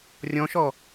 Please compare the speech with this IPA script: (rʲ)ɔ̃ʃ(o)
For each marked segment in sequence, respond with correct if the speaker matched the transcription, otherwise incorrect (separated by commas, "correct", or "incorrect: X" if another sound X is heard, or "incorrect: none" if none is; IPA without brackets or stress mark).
correct, incorrect: ɔ